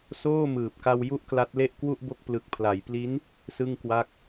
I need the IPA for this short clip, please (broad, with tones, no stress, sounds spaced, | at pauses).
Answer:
s oː˥˩ m ɯː˨˩ p̚ k a˧ w j u˥˩ ʔ k l a˦˥ t̚ l e˥˩ ʔ k w u˥˩ ʔ b o˦˥ k̚ p l ɯ˨˩ k̚ pʰ l a˩˦ j p l i˦˥ n | s ɯ˥˩ ŋ k w a˥˩ k̚